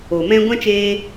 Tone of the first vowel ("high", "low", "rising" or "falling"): low